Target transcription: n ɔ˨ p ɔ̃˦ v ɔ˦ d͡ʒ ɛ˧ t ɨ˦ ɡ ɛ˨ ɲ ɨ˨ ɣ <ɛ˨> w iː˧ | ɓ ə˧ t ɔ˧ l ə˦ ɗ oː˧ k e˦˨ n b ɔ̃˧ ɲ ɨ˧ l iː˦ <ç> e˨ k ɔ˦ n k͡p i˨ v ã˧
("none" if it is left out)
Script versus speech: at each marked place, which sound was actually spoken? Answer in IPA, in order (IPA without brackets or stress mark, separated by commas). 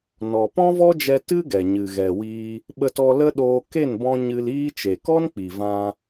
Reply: ɛ˨, t͡ʃ